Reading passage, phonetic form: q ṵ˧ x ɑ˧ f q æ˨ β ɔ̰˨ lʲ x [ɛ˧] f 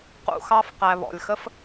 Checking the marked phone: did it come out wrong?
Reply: yes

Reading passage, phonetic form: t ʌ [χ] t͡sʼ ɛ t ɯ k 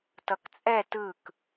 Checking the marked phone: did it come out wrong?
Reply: yes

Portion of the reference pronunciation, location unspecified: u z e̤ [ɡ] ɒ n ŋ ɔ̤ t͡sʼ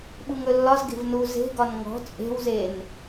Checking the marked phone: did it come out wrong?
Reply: no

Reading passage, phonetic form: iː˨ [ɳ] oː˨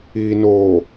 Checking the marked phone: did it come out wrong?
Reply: yes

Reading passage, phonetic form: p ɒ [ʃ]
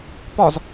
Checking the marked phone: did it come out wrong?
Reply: yes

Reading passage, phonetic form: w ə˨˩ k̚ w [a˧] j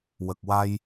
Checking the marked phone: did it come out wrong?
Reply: no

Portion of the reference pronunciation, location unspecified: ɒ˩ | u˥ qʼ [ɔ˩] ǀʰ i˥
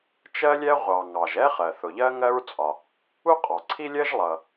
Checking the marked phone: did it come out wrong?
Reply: yes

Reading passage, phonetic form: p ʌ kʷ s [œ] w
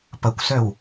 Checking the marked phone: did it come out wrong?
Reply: no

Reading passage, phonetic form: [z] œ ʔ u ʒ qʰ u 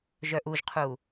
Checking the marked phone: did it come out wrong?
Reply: yes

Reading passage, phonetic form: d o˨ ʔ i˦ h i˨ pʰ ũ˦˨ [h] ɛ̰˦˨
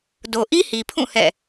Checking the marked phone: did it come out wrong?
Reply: no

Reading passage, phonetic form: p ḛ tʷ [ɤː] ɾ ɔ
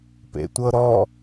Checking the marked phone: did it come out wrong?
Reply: yes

